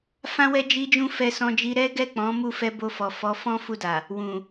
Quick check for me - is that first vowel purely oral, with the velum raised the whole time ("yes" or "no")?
no